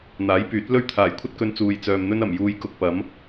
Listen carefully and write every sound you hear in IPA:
n̪ aː˨˥ j p yː˨˥ t̚ l ɵ˥ ɥ t̪ʰ aː˨˩ j kʷʰ ɐ˥ t̚ k ɵ˧ n t͡s uː˨ j t͡s œː˨ m n̪ ɵ˥ n ɐ˨˩ m j uː˨˧ j k ʊ˨ k̚ p ɐ˨˥ m

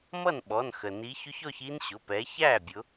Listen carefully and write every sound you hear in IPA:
m ʌ˥˩ n ɓ ɔ˩˧˩ n x ə˩ n i˨˦ ç ʊ˦˥ ç ɔ˥˧ ç i˦˥ n ɕ ʊ˩˧˩ p ɛ˨˦ ç æ˥˩ bʲ ʊ˨˦

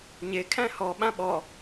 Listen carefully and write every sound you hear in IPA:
ɲ e kʰ æ̃ h ɔ ɓ ã ɓ ɔ

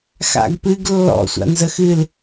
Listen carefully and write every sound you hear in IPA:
x a̰ ɡ p ɨ ɡ lː ɔ̰ sʷ a̰ n z ə x ɨ l

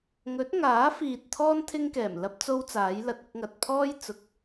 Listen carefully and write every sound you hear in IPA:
ŋ ɵ˨˥ t̚ ŋ aː˨˥ f iː˨ t̚ t̪ʰ ɔː˥ n t̪ʰ ɪ˥ ŋ k ɛː˨˩ m l ɐ˥ p̚ t͡s o˥ w t͡s aː˨˥ j l ɐ˨ t̚ ʊ˥ k̚ ŋ ɐ˨ t̚ pʰ ɔː˥ j t͡s ʊ˨˥ k̚

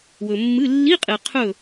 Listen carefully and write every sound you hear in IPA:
w ɵ˨ mː ɨ˧˥˧ lː i˧˥˧ qʼ e˨ qʰ ɵ˥˨

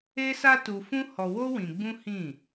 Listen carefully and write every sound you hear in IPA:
e˦ s a˦ t u˧ f ũ˦ h ɔ˧ w o˦ w ĩ˧ ɡ͡b ũ˦ h ĩ˦˨

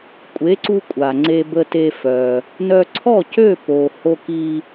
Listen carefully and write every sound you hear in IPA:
kʷʼ e˩˥ ǀ u˧ kʷʼ a˩ ŋ͡ǀ e˧ b ə˧ t e˧ f œ˩ | n œ˧ ǀʰ ɔ˥˩ c ø˥˩ p o˩ h o˧ k i˧

